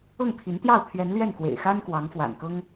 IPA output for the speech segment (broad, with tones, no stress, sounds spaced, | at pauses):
ɤ˥˩ ŋ t̪ʰ i˧˥ n t̪ j ɑ˥˩ ʊ̯ t̪ʰ ɥ ɛ˧˥ n l ɥ ɛ˥˩ n k w ḛ˨˩ ɪ̯ x a˥ n k w ɑ˧˥ ŋ f w a̰˨˩ n k ɤ˥ ŋ